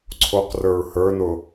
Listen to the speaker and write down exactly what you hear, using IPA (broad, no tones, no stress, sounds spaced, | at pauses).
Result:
ǀʰ o q r ə˞ ɹ h ə˞ n ʊ